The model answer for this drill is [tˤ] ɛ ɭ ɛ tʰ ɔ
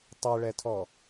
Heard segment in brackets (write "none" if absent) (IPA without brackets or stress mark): tˤ